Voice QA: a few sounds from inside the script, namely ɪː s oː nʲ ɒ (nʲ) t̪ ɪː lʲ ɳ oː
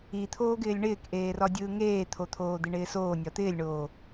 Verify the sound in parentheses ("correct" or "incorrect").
incorrect